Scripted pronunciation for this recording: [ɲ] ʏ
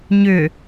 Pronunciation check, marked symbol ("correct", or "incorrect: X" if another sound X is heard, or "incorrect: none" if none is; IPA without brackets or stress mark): correct